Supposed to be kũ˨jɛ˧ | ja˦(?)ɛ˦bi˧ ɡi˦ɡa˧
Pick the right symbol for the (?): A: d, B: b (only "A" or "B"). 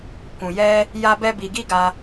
B